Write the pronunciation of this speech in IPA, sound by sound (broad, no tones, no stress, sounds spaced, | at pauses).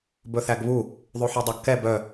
b ɵ θ æ ɡ β u | ðˤ ʉ ħ œ dˤ ɑ ɡ k ɛ b œ